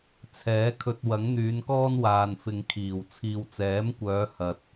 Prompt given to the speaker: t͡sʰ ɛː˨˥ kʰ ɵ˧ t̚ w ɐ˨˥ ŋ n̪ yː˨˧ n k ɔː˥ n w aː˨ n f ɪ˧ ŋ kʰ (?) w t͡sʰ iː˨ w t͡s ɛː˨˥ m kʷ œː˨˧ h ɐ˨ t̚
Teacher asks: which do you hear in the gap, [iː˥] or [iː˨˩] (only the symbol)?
iː˨˩